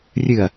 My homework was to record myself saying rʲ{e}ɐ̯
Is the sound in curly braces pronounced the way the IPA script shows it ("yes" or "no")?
no